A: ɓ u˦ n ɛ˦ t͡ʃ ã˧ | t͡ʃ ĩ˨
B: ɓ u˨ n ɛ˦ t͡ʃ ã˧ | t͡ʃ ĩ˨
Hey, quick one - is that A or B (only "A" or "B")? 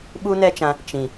A